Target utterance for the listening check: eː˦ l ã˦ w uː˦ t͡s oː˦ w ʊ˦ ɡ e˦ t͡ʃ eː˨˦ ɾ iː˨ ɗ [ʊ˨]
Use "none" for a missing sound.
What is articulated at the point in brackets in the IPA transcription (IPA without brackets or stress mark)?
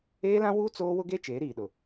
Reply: ʊ˨